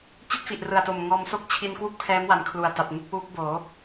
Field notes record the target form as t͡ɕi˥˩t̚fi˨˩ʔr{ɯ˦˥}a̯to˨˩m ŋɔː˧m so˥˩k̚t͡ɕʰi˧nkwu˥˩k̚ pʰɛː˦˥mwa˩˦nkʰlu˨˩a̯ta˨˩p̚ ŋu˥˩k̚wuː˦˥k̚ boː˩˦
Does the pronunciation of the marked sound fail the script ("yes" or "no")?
yes